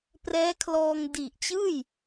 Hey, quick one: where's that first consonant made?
lips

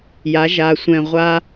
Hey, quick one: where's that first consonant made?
palate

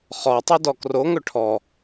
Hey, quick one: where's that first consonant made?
uvula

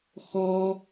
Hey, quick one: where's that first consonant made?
velum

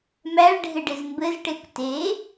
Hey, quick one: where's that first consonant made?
lips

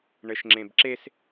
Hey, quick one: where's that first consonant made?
retroflex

